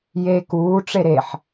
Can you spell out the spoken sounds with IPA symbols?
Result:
j e k uː ʈ͡ʂ e ɾ e ħ

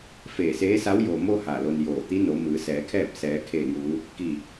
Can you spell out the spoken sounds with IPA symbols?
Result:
f eː˧˩ s eː˧˥ s a˧˥ w j o˩ m o˧ h a˧˩ l o˧ n j oː˧˩ t̪ i˧˥ n o˩˧ m ɯː˩˧ s ɛː˩˧ kʰ ɛː˥˨ p̚ s ɛː˩˧ kʰ eː˧˩ ŋ uː˩˧ | k i˧˩

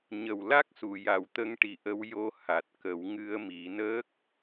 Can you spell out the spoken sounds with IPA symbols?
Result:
ɲ ə˨˩ w l a˦˥ k̚ s u˨˩˨ j a˨˩˨ w t̪ ə˧ ŋ ʈ i˨˩ ʔ ə˧ w j o˧ h a˨˩ t̚ k ə˨˩˦ w ŋ ɨ˧ ə̯ m i˨˩˦ n əː˦˥ k̚

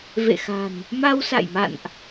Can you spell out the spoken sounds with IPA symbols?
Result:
v ḛ˧˨ x a̤˨˩ n | m a˧ w s a̰˧˨ j m a̰˧˨ n ʔ

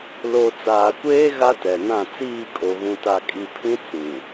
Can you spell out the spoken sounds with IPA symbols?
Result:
l o˨ t͡s aː˨ kʷ eː˦ ɣ a˦ t ɛ˨ n ã˦˨ t͡s iː˦˨ kʼ o˨ ɣ ũ˨ t a˨ kʼ i˨ pʰ ĩ˦ t͡s ĩ˨

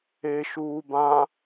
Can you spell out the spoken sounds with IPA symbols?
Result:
e ʃ uː b ã

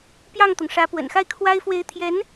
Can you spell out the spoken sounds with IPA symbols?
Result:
p j ɑ˥˩ ŋ t̪ ʊ˩ ŋ ʂ ä˧˥ p w ə̰˨˩ n x a˥˩ ɪ̯ kʰ w a˥ ɪ̯ f w e˧˥ ɪ̯ t̪ʰ j ɛ˧˥ n

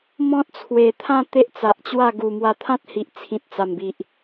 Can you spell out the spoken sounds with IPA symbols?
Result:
m ɔ̃˦ t̚ t͡sʰ w e˨˩ t̪ʰ ã˥˧ t̪ e˦ ʔ t͡s a˨ ʔ t͡ɕ w a˥˧ ɡ u˨˩ m w a˧ t̪ʰ ã˦ t̚ h i˨ ʔ t͡sʰ ĩ˨ t̚ t͡s a˨˩ m b i˨ ʔ

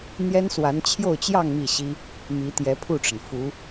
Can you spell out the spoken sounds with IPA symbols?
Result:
n̪ j ɛ˥ n s w a˧˥ n t͡ɕʰ j o˥˧ ʊ̯ t͡ɕ j ɑ˥˧ ŋ m i˥˩ ɕ i˥ | m i˧˥ t̪ j ɛ˧˥ pʰ u˥˩ ʈ͡ʂ ə˩ n f u˧˥

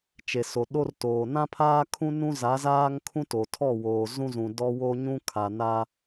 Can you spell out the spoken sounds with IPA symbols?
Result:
t͡ʃ e˨ s o˨ ɗ o˦ r t oː˨ n ã˦ pʰ aː˦ kʰ ũ˦ n ũ˦ z a˨˦ z aː˦ ŋ kʰ ũ˦ t o˨ tʰ ɔ˦˨ w oː˨ z ũ˦ z ũ˨ d ɔ˦ w o˦ ɲ ũ˦ kʰ a˨ n a˦

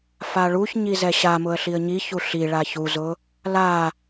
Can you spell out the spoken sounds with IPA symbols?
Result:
f a ɭ u ç ɲ i z ɛ ɕ a m ʊ ə̯ ɬ i ə̯ ɲ i ç u ɬ i ɭ a ç u z ʊ | l a

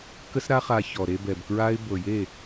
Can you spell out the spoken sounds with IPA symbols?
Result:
k ə˦ s ɾ a˦ χ a˧ ç ɔ˨ ɾ e˧ b ɛ˨ b k ɹ a˦ ɪ̯ b ɤ˨ j e˦˨

